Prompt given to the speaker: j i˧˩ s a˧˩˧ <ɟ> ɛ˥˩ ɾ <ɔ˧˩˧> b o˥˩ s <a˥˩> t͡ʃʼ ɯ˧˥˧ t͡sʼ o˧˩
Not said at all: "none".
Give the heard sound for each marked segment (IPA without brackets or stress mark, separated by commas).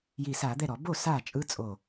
d̪, ɔ˧˩˧, a˥˩